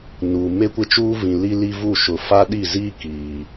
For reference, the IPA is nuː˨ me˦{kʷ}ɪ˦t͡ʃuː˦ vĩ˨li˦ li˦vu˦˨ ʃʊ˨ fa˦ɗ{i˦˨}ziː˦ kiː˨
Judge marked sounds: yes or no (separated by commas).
yes, yes